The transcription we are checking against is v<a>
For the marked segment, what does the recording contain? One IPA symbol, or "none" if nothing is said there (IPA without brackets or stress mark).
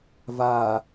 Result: a